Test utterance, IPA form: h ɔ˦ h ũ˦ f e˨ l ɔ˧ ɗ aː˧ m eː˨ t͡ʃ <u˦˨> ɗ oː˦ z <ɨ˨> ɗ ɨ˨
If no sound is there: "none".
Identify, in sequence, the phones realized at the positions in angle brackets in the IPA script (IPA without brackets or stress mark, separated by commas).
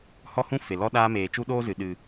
u˦, ɨ˨